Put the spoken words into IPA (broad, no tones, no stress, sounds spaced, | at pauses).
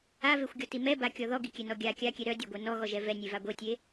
a v e xʷ ɡʲ ɔ t i m ɛ b a kʲ ɔ ð ɔ ɡ i kʲ ɛ n ɔ ɡʲ a kʲ a kʲ ɛ ɾ œ dʲ a ɡʷ ɛ n ɔ ɣ ɔ ʒ ɛ v ɛ nʲ e v a ɡʷ e tʲ e